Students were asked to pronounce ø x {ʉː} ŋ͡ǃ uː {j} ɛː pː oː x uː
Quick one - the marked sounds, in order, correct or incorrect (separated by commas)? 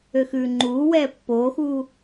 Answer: correct, incorrect